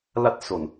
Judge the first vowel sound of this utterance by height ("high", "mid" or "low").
low